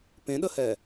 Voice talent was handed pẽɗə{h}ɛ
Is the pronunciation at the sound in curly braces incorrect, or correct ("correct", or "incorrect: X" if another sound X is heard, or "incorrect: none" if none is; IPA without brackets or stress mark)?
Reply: correct